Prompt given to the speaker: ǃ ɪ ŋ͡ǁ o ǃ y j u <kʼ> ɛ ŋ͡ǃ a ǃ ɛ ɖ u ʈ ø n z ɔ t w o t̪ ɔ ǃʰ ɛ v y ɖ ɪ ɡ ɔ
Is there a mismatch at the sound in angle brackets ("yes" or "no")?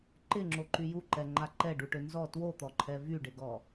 yes